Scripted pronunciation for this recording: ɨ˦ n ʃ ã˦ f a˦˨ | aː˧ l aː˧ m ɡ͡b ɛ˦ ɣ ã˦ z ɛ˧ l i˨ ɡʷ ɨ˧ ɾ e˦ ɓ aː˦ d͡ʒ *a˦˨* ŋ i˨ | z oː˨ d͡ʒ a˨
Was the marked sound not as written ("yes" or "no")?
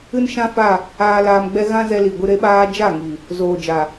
no